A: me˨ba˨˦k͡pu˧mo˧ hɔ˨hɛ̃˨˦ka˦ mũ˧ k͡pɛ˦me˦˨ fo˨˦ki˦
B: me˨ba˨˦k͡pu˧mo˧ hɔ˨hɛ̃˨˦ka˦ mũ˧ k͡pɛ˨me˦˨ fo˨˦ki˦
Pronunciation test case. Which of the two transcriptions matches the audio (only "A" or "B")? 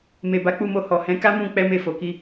A